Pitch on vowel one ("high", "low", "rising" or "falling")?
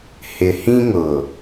low